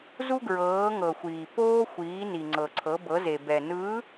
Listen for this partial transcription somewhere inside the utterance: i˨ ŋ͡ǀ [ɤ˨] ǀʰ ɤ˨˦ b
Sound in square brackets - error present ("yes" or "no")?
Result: no